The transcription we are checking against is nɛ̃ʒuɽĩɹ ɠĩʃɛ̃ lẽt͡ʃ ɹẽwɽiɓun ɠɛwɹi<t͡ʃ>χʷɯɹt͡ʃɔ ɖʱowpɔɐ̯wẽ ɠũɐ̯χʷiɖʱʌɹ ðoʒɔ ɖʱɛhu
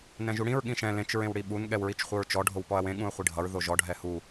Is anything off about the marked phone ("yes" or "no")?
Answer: no